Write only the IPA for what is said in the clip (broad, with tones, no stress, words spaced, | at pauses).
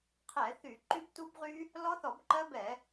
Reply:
qʰɛ˧˩˧ θy˧˩˧ǃy˦˥btu˦˥bʁy˦˥ | lɔ˦˥θɔ˧˩˧bǃɜ˦˥ bɛ˧˩˧